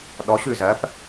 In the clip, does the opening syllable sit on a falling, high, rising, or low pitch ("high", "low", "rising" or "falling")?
rising